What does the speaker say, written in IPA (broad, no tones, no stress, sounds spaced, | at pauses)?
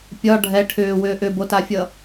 pʲ ɒ ɖʱ ɛ ʈʰ ʏː w ʏː ʔ ʏ b o t a fʲ ʌ